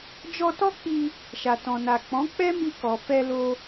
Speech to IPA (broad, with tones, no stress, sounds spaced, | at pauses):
d͡ʒ ɔ˧ t ɔ˦ k͡p i˧ | ʃ a˨ t ɔ̃˨ n a˨ k͡p ɔ̃˨˦ k͡p ɛ˦ m i˧ k ɔ˨ f ɛ˧ l o˧